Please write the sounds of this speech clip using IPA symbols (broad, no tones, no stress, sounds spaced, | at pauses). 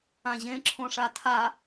ã ʑ ẽ ǁʰ õ ʂ a tʰ a